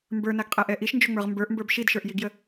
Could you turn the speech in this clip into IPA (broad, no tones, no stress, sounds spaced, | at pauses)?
m b ə˞ n a ɡ qʼ ɛ ʔ ɛ ʔ i ʃ n d͡ʒ o ŋ͡m ə˞ ʁ m b ə˞ ʔ m b ə˞ b ʃ i d ʃ ə˞ ʔ j i ɡ j ə